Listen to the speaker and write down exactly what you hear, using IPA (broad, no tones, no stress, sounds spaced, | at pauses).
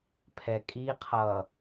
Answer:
pʰ ɛ kʼ i qʰ ʌ